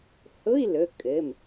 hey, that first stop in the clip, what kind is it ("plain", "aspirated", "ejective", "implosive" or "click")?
ejective